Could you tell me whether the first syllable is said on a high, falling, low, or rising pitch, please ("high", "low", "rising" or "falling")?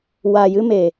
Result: low